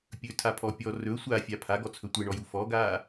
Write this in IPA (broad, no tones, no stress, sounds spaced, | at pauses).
pʲ ɵ tʰ a pʰ ɔ pʲ ɔ r ɵ sʷ a fʲ a pʰ a ɡ ɔ t͡sʰ ɵ tʷ e ɳ ɔ j u f ɔ ɡ aː